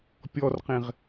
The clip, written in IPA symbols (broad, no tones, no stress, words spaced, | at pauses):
pʲɔrqẽʁ